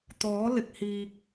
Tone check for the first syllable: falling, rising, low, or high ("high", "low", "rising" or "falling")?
rising